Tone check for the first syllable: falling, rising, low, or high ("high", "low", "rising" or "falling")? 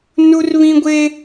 high